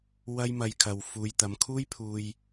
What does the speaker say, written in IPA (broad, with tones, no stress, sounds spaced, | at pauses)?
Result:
w ɐ˥ j m ɐ˧ j kʰ ɐ˨ w f uː˨˧ j t̪ ɐ˨˧ m kʰ uː˥ j pʰ uː˧ j